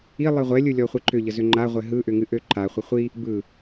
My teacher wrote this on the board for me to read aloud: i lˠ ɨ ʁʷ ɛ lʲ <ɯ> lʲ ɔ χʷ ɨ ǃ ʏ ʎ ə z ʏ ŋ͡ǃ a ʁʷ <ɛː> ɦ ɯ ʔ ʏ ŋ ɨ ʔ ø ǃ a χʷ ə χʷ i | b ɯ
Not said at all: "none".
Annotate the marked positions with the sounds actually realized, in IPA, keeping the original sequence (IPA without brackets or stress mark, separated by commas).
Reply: ɯ, ɛ